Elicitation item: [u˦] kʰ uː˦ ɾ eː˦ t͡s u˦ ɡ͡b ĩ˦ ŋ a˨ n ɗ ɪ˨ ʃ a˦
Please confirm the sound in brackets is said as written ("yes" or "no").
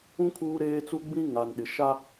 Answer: no